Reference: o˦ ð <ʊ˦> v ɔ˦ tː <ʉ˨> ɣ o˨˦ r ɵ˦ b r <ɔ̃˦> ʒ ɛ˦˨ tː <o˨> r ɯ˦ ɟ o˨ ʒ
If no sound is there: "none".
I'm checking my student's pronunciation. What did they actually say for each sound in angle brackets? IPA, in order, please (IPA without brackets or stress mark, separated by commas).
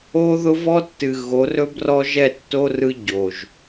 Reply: ʊ˦, ɨ˨, ɔ˦, o˦